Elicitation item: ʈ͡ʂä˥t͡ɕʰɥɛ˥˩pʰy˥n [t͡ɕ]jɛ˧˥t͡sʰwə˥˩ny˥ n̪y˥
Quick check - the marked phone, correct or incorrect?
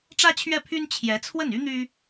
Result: incorrect